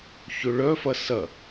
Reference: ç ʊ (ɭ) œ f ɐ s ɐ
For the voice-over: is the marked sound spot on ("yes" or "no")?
yes